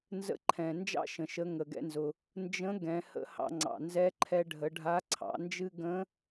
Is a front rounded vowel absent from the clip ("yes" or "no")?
yes